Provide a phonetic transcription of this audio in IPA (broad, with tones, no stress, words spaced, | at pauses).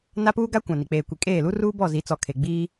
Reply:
na˦puː˦ ɡa˦ kʷã˨ni˨ k͡peː˨kʷi˨kʼeː˦˨lu˦ ruː˦bɔ˦˨zi˨˦t͡sɔ˨ kʰe˨ ɡ͡biː˦